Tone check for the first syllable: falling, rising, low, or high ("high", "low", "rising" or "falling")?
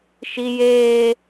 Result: high